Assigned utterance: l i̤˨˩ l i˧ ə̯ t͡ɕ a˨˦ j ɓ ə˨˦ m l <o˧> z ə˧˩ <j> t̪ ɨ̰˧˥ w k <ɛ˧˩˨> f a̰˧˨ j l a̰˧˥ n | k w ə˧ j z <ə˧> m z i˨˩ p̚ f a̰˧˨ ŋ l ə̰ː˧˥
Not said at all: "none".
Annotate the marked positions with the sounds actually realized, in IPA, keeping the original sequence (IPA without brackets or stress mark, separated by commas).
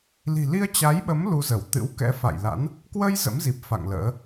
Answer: u˧, w, ɛ̰˧˥, ə̰˧˥